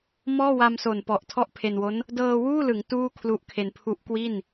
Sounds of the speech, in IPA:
mɔː˥˩wa˧mso˨˩n pɔ˨˩ʔtʰɔ˥˩ʔpʰe˧nwo˦˥n | dɤː˧wuː˥˩lɯ˩˦ŋ tuː˥˩kʰlu˦˥ʔkʰe˧n pʰu˦˥ʔkwi˥˩n

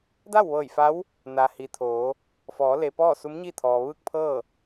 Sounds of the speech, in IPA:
da˥˨wʋɤː˧˩j fa˧˥w | na˩hi˩ t̪ʰoː˩˧ | fɔː˩˧le˩ pɔː˥˨su˧˥mɲi˥˨ t̪ʰɔː˩ʋɯː˥˨k̚pʰɤː˥˨

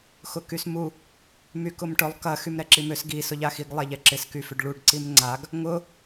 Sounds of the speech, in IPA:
xʊkysmu | mykʊmʈʊlˠ kɐ xymɾɛǁimøs ɡi sʊʎaxiɡ lˠɛʎɛǁɪs kyfʏɖɭuɖ ǀimŋ͡ǀaɡ | ŋʊ

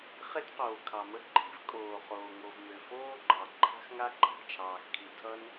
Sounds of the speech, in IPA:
χe˥tqoː˩ kʰɑ˩mə˥ ǃʰi̤˥vkʼoː˩χoː˩ ŋo˩v mø˩foː˥ɡ͡ǃɑ˩ ǃʰa̤˥xŋa˥ǃʼa̤˩ t͡ʃʰɑː˩xkʰi˩ tʰʌ˥n

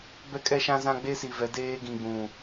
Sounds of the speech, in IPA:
bɛ˦kʼɛ˦ʃã˦zã˦ ɡ͡be˦si˨vɛ˨˦ deː˦ ɡĩ˨ɡ͡bũ˨

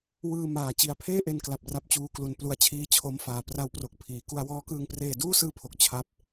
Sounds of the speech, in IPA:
wɯː˧ maː˨˩t͡ɕi˨˩a̯ pʰeː˥˩ʔe˧nkla˨˩p̚ ra˦˥p̚t͡ɕuː˦˥klu˧n plu˧a̯ t͡ɕʰiː˦˥t͡ɕʰo˦˥mfaː˨˩ pra˦˥w pro˨˩k̚pʰiː˩˦ ku˧a̯wɔː˦˥kɯː˧ŋ preː˧duː˥˩sɯː˦˥pʰo˨˩k̚ t͡ɕʰa˥˩p̚

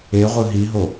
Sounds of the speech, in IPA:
eʁʷɯ ɦiɦo

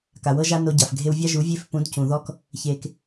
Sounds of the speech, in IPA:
ka˨wɤ˦ʒa˦ no˧ɟa˨f ɡʱe˧wvʲa˦ʒu˨˦vʲe˦˨f pũ˨˦dcũ˨ðɔ˦k | çe˧k

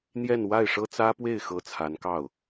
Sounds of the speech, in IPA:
n̪jɛ˥˧nwa˥˩ɪ̯ʂɤ˥t͡sä˥ pwe˥˩ɪ̯xɤ˧˥ t͡sʰa˧˥n kɑ˥˩ʊ̯

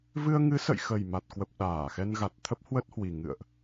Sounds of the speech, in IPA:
vɨ˧ə̯ŋɨ˨˦sə̰˧˨jxə˨˩j ma˨˩t̚kwə˨˩p̚ ɗaː˧˩xɛ˧nɣa˨˩t̚ t̪ʰə˦˥p̚hwə˦˥t̚hwi˨˩ ŋɨ̰˧˨ə̯ʔ

